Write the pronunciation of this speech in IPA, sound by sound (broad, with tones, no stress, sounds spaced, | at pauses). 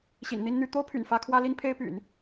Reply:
ɕ ḭ˨˩ n n̪ i˥ n n̪ y˥ t̪ o˥ ʊ̯ pʰ y̰˨˩ n f ä˥ kʰ w ä˥ l i˥ n pʰ e˥ ɪ̯ p y̰˨˩˦ n